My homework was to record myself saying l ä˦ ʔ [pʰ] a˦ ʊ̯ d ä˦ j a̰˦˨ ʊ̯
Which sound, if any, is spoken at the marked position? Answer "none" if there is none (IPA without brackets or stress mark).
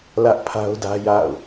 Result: pʰ